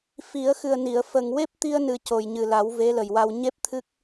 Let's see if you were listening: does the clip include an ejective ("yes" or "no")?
no